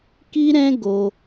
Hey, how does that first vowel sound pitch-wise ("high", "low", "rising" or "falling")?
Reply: high